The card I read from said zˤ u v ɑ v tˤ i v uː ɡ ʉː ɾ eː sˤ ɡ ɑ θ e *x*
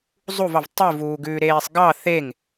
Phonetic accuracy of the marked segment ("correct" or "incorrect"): incorrect